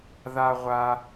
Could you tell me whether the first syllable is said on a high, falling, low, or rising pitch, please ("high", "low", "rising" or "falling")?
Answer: high